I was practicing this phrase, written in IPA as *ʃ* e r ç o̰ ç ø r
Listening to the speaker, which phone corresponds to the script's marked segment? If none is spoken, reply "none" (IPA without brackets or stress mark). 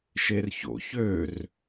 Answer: ʃ